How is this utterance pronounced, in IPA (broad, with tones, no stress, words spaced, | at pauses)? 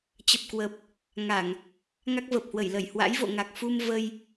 t͡ɕə˨˩p̚kwə˨˩p̚ | ŋa˧˩˨ŋ | ŋa˦˥k̚və˨˩p̚hwə˧˩jlə˧˩j hwa̰˧˥jvo̰˧˨ŋa˨˩k̚fu˧m və˧j